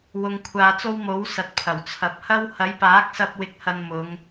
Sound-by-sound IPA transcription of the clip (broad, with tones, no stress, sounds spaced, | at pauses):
w ʊ˨ ŋ kʷʰ aː˨ t͡s o˧ w m o˨˥ w s ɐ˨ t̚ pʰ ɐ˨˩ w t͡sʰ ɐ˨ p̚ h ɐ˥ w h ɐ˨˥ j p aː˨˥ k̚ s ɐ˧ p̚ w ɪ˧ k̚ h ɐ˧ n m ʊ˨˧ ŋ